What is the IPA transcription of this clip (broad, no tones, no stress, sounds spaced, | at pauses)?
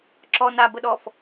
ǁ ɔ n a b ə ɗ ɔ f